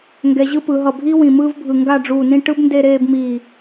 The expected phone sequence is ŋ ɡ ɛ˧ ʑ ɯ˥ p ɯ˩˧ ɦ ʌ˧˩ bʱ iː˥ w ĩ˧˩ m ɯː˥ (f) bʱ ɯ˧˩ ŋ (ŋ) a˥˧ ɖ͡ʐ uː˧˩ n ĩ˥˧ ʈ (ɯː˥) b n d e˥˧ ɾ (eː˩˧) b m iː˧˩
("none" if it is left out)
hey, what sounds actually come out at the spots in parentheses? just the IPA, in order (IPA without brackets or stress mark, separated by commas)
v, ɡ, ɯ˥, eː˥˧